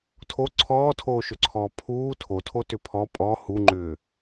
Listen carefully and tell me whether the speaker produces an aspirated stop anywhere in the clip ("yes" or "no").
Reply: yes